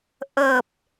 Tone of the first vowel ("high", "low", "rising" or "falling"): low